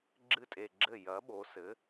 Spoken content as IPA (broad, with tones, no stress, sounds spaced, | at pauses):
ɡ͡ǁ ɨ˥˩ tʼ e˨˩ ɡ͡ǁ ɘ˥˩ j ɐ˩˥ ɓ o˩˧ s ɘ˩˥